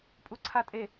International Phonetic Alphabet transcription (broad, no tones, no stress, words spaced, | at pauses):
pʼuǀʰatʼe